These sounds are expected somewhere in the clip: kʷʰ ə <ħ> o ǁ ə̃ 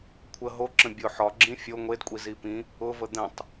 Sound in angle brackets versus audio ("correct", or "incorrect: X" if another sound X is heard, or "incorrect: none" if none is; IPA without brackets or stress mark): incorrect: ɦ